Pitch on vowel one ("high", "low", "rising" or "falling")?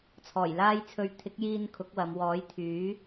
low